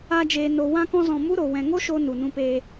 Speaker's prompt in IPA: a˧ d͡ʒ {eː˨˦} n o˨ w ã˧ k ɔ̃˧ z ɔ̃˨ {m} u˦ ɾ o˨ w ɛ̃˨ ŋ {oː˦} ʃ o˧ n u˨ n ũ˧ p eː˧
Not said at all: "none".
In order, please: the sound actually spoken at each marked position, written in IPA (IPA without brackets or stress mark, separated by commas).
eː˨, m, o˦